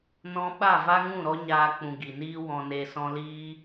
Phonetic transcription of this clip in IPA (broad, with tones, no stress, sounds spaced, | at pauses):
n ɔ̃˧ ɓ a˦˨ v a˦ ŋ ũ˦˨ ɾ ɔ˦ ɲ aː˧ k͡p ũ˨ ɡ i˨ n iː˦ w ɔ̃˨ n e˨ s ɔ̃˧ l iː˦